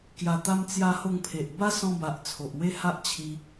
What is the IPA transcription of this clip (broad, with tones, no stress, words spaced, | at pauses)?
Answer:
kja˧t̪a˦m t͡sja˧ho˧ŋpʰe˨ʔ ba˦sɔ̃˧ba˨ʔ t͡sʰo˨ʔwe˦ha˦ʔ t͡ɕʰi˧